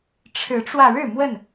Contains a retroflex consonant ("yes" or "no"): yes